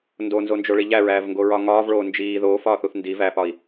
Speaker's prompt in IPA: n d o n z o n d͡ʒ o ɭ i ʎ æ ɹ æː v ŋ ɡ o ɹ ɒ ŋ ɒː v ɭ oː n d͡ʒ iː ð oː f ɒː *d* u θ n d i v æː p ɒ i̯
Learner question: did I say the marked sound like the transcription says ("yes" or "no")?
no